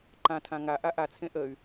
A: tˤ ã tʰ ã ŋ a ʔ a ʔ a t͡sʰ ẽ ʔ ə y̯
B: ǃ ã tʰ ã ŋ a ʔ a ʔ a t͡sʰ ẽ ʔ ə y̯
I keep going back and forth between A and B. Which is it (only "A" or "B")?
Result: B